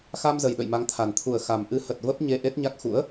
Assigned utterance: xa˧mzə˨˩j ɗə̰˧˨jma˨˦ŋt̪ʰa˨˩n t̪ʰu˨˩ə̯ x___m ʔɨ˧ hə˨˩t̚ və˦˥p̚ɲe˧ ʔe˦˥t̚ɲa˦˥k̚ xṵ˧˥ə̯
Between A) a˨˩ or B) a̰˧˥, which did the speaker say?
A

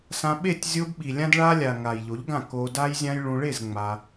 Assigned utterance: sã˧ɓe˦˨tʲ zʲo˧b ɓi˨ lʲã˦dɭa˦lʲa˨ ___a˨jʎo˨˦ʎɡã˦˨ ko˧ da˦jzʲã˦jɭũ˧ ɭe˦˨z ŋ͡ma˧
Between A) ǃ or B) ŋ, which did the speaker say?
B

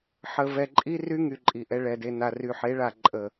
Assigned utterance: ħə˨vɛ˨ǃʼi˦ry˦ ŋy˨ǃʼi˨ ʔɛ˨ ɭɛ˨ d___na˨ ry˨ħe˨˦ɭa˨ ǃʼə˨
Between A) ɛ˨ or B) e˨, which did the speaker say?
B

